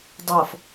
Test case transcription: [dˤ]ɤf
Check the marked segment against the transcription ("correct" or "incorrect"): correct